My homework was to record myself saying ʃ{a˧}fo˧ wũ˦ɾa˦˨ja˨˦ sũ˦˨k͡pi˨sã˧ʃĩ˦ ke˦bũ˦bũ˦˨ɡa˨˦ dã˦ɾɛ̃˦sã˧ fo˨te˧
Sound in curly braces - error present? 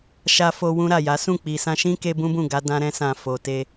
no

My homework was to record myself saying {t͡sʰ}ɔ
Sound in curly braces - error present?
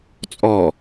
yes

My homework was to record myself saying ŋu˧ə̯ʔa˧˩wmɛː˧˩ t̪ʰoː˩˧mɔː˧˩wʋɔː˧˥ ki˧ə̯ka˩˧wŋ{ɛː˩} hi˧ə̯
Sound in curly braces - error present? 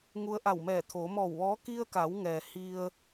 no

